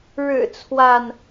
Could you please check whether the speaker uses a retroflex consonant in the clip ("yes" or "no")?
yes